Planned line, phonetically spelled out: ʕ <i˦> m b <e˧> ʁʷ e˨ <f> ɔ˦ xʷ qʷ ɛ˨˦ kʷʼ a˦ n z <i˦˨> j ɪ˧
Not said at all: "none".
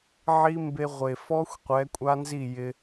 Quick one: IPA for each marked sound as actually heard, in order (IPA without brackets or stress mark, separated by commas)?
i˦, e˧, f, i˦˨